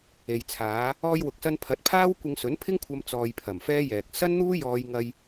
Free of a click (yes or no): yes